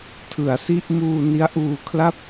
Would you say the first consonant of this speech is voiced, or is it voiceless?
voiceless